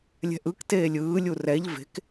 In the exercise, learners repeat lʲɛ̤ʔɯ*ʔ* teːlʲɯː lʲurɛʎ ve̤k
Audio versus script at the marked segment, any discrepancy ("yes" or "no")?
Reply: yes